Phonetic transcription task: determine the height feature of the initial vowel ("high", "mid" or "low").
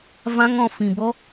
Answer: low